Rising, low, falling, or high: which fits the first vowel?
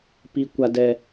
high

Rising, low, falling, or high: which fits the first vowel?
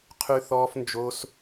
high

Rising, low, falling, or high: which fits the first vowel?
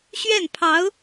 falling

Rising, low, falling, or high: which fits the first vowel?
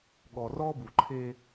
low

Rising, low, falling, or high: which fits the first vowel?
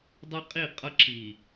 high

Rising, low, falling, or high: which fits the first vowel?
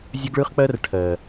high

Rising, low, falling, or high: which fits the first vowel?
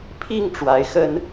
falling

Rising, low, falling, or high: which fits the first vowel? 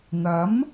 rising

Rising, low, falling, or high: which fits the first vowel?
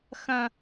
low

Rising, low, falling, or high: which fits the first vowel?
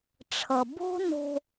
low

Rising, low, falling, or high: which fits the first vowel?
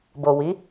low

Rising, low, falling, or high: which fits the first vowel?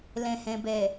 low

